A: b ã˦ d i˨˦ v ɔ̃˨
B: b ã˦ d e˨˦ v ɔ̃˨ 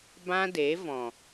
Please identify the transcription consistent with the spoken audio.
B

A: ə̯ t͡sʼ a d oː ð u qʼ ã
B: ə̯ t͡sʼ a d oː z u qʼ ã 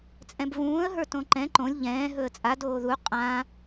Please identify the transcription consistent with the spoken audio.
A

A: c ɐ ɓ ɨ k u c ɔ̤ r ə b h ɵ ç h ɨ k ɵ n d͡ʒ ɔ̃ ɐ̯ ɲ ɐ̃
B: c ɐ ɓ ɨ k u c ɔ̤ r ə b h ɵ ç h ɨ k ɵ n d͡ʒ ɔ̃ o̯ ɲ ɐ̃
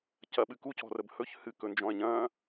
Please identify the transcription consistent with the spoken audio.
A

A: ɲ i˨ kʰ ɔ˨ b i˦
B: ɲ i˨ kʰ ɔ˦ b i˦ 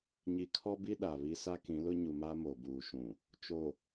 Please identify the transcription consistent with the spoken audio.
B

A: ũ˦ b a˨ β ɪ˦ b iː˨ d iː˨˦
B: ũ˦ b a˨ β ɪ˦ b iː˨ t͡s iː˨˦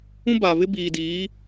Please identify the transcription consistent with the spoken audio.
A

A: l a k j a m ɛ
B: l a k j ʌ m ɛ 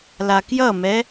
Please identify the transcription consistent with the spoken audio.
B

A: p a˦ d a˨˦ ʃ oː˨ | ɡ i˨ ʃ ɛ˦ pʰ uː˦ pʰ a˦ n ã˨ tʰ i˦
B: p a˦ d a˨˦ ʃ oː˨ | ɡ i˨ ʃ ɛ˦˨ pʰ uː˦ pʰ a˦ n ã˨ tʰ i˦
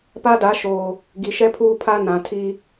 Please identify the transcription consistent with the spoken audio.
A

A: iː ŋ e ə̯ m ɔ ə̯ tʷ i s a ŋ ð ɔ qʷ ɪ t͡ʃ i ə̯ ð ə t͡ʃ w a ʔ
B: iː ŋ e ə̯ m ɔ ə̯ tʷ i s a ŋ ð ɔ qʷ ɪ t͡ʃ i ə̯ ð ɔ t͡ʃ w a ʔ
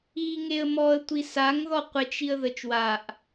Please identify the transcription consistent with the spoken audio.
A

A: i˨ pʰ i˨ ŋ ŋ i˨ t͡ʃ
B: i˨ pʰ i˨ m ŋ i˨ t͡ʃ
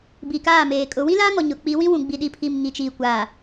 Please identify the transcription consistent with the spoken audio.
B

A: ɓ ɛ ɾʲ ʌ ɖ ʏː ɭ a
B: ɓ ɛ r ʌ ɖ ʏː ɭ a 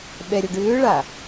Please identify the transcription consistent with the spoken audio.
A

